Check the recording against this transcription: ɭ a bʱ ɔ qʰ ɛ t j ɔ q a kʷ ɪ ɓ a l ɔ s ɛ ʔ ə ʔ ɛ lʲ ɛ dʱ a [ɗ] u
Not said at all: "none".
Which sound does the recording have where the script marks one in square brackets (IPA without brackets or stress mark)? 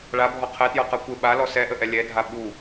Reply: ɓ